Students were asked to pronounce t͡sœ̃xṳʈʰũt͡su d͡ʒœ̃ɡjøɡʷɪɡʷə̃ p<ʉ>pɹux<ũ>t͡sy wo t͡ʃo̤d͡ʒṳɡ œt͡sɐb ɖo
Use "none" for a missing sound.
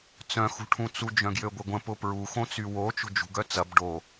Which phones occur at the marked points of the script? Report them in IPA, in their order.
ʊ, õ

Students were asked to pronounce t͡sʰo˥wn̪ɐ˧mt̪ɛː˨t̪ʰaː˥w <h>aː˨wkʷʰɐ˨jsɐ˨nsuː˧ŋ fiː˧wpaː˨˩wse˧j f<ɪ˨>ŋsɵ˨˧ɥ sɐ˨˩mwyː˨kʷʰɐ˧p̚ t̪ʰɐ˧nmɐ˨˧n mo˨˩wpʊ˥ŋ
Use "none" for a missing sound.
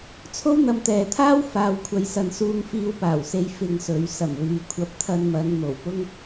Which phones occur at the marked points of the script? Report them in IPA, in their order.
f, ɪ˧

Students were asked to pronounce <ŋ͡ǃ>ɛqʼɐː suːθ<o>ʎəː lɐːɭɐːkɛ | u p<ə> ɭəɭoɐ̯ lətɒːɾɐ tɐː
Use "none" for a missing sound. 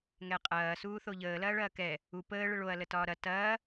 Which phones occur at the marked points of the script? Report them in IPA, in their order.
ŋ, o, əː

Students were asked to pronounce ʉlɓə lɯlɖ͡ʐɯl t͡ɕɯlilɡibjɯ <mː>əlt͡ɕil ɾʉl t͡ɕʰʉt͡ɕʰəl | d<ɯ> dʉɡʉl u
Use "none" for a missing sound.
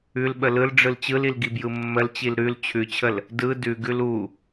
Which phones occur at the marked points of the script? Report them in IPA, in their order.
mː, ɯ

